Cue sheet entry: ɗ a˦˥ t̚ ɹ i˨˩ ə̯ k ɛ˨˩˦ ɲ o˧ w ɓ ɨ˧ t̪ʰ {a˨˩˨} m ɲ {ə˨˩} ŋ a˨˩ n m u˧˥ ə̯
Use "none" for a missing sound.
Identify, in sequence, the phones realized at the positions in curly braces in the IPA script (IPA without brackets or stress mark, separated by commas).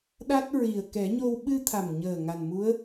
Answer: a˨˩, əː˨˩